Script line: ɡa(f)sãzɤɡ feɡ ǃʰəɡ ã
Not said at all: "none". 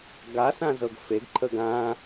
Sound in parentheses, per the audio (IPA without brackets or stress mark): none